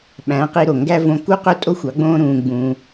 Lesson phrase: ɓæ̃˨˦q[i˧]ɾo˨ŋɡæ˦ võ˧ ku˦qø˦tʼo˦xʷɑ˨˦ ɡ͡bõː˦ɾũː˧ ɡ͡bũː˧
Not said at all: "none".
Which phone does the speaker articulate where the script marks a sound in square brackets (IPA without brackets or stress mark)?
i˧